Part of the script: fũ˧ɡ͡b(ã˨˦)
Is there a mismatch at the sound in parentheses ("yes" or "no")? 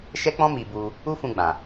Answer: yes